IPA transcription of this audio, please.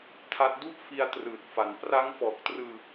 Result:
tʰa˦˥t̚ du˥˩ʔ fi˧a̯ trɯː˨˩t̚fa˩˦n pra˦˥ŋfɔː˨˩k̚trɯː˧

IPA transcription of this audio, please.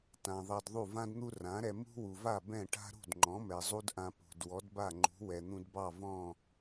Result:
tã˩ ðˤɑ˧dðˤu˥˩ vã˥dn̪u˥ rã˩˥ɾɛ˧ mṳ˥wu˩va˥˩ bɛ̃˥˩ʈa̤˥ ɾṳ˥˩dŋ͡ǃɔ̃˩˥mɛ˩ zˤu˥dʔã˧pṳ˩d wɔ˩˥dba˥˩ŋ͡ǃṳ˩˥ wɛ˩n̪ũ˧dbɑ˥˩ vɔ̃˥˩

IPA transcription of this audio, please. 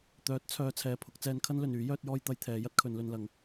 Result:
t̪œː˨˥t̚t͡sʰœː˨˧ t͡sʰɛː˨pʰʊ˨˥k̚ t͡sɛː˧nkʰɐ˥nlɵ˨nyː˨˥ jœː˥t̚jɔː˥j t̪ɐ˧jt̪ʰɛː˨˧ jɐ˥t̚kʰɵ˨˧nlɵ˧nlɐ˨˥ŋ

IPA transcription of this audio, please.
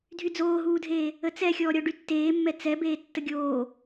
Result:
dʱyd͡zoːɦuːdʱeː | ət͡sɛxʲɔːɾʲɔ ɖytːeːmːɛ t͡sɛbeː tːəɡʲoː

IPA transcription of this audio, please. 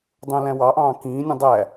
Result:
dˤũlæ̃wɑʔɑ̃ː kĩːnʲũ dˤæ

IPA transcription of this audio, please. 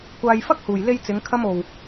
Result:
kʷaː˧jfɐ˥k̚huː˨j le˧jt͡sɪ˨˧ŋ kʰɐ˧mo˨w

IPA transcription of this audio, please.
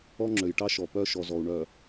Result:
ɔ˦ŋ͡ǁø˨jʈɑ˦ʃɔ˨ pœ˦ʃɔ˨zɔ˨u̯ɳœ˨

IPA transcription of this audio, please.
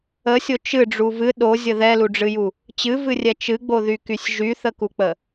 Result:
əsʲo t͡ʃɨɖ͡ʐu vɨ ɗozʲə ðɛluɖ͡ʐɨju | t͡ɕɨvɨrʲɛ t͡ʃɨɡ͡boðykysʲ ʒyθəkuk͡pə

